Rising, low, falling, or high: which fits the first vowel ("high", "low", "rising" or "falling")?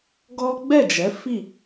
high